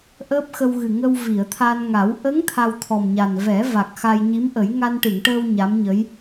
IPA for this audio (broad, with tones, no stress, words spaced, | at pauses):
ʔəː˦˥p̚xə˧wɣɨ˨˩ ŋə˧w vi˨˩˨ə̯t̪ʰa˧nŋa˨˩˦w ʔə˧˥ŋ t̪ʰa˧wt̪ʰɔ˨˩mɲa˨˩n vɛ˨˩˦ va˨˩k̚ xa˧jɲi˧˥mʔə˨˩˦j ŋa˧nʈɨ˨˩˨ŋʈəː˧w ɲa˧˥mɲə˧˥j